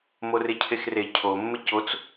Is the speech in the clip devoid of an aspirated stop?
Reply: no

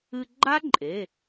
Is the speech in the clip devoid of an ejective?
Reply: no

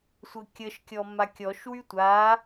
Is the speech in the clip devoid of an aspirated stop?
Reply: yes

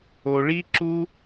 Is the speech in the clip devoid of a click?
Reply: no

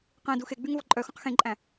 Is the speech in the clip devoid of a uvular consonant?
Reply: no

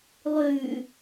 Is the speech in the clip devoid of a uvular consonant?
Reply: yes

